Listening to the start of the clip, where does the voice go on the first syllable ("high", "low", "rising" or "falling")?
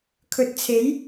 low